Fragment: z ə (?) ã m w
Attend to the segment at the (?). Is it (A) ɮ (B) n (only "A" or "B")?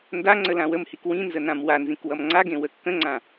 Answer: B